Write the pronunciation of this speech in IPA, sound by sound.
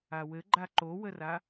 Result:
a w ɘ ɡ͡ǃ a ǃ o w ə r a

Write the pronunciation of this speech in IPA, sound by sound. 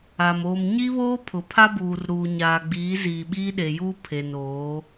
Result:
a˨ m oː˨ m ɲ i˦ β oː˦ pʰ ʊ˨ pʰ a˦ b uː˨ r ɾ uː˨ ɲ aː˨ ɡ͡b iː˨˦ z iː˨ ɓ iː˦ ɗ e˨ j uː˦ pʰ e˨ n oː˨˦

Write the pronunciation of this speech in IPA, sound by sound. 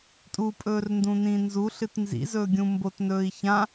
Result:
tʼ u pʼ ɵː r n d ũ n ĩː n z u ɬ ɨ t n z ḭ z ɵː ɡʲ ũ m b o t n ɵː i̯ ç ã

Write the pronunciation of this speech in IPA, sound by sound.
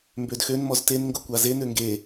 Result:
m b ø d x ø n m ɔ z t e n ŋ ɡ o kʷ a z e n ø ŋ ɡ e

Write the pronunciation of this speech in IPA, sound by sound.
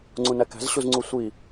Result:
ŋ͡ǀ ũ n æ k æ̤ z ɕ u z ŋ͡ǀ u sʷ i

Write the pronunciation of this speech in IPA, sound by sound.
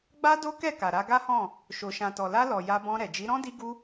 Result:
ɡ͡b a˦ d o˦ k ɛ˦˨ k a˨ ɾ a˧ ɡ a˦ h ɔ̃˦˨ | ʃ o˨ ʃ ã˨ t ɔ˨ l a˧ l ɔ˨ j a˧ b ɔ̃˧ ɾ ɛ˨ d͡ʒ i˨˦ ɾ ɔ̃˦ d i˦ ɡ u˦

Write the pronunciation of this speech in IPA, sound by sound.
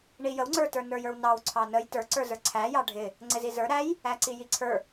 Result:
ɳ i j ə w ŋ͡ǀ ə˞ t ə˞ n ə˞ j ə˞ w n ɑ w ǀʰ ɑ n ə j t ə˞ ǀ ə˞ z ə˞ ǀʰ æ j ɑ ɖʱ ɪ | ŋ͡ǀ ɪ z i z ə˞ ɾ æ j | æ ǀ i j i ǀʰ ə˞

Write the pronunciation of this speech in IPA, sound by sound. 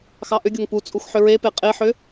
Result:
x ɑ ʔ ʏ ɡʲ o ŋ p u t͡sʼ u x ħ ʏ ɹ e p e qʼ e ħ ʏ

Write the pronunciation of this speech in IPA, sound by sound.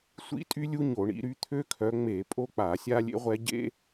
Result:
sʷ ḭ˥ tʼ y˥ lʲ u˥ ɲ o˧˩˧ ɳ ḭ˨˦ ɾ y˥ t̪ʰ ø˥ kʰ œ˨˦ ŋ͡m e˧˩˧ pʼ o˥ k͡p a˧˩˧ sʲ a˥ lʲ ḛ˥ ʁʷ ɛ˥ ɟ ḛ˥

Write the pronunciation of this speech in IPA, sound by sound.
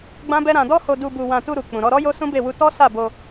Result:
ɡ͡b ã˦ b ɛ˦ ɾ ã˧ d ɔ˦ h o˧ d u˧ b u˧ w ã˧ t u˧ ɾ u˨ k͡p ũ˨ ɾ ɔ˧ ɾ ɔ˦ j o˦ s ũ˦ b e˦˨ w u˧ t ɔ˦ s a˦˨ b o˧

